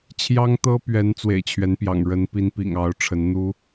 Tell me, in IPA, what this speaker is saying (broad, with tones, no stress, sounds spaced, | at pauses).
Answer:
t͡ɕʰ j ɑ˦ ŋ t̪ ɤ˦ p ɥ ɛ˨˦ n t͡s w ḛ˨˩ ɪ̯ t͡ɕʰ ɥ ɛ˨˦ n p j ɑ̰˨˩ ŋ ɻ ə˨˦ n p i˨˦ n p ḭ˨˩ ŋ ɑ˨˦ ʊ̯ ʈ͡ʂʰ ə˨˦ n n̪ u˦